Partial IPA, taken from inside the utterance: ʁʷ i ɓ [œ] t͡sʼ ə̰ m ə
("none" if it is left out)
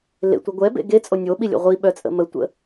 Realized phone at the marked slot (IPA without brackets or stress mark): œ